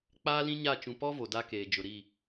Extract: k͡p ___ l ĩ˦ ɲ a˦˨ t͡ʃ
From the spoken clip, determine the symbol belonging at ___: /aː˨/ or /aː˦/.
aː˦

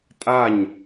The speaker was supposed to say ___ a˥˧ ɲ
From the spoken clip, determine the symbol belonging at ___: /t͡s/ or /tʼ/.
tʼ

